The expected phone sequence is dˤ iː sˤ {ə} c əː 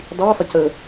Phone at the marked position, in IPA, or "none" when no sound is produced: ə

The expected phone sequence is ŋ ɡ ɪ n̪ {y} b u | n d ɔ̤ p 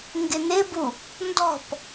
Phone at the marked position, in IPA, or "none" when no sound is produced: ɪ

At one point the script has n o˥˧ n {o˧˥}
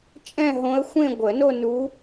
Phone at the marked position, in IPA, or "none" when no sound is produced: u˧˥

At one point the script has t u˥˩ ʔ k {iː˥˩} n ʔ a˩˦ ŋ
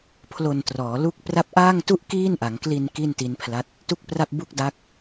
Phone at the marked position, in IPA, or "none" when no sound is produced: iː˥˩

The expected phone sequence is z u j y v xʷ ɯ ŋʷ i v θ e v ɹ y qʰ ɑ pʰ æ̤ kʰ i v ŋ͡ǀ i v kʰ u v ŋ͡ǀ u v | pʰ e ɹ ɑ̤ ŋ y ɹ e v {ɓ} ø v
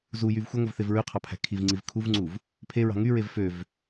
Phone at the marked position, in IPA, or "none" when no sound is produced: f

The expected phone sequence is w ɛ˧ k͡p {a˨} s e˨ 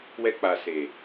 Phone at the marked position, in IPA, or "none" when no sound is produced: a˨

